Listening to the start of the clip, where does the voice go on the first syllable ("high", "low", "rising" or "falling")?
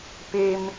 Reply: high